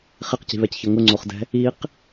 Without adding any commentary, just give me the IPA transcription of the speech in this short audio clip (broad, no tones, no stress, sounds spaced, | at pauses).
χ e q c i̤ β ɛ c ç ɤ ŋ ʊ ŋ͡ǀ o χ d ɛ̤ | i q